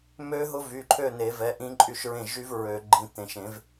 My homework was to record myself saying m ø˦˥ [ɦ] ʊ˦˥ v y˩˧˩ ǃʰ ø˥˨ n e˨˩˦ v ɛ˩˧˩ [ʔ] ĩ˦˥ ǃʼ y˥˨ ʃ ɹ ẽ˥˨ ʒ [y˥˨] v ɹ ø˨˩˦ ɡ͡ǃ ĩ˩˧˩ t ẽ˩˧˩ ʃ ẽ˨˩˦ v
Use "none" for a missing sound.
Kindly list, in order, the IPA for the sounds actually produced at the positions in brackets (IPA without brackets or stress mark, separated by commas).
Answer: ɦ, ʔ, y˦˥